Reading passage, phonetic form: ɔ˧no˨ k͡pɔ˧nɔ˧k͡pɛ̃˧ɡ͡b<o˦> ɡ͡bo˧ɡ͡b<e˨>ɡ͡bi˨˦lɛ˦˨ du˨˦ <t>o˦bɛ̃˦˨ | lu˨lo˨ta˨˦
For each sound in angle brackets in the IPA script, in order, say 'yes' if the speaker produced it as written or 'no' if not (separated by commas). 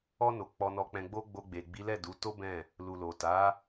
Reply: yes, yes, yes